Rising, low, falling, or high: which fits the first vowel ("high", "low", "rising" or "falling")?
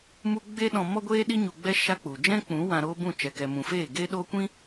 high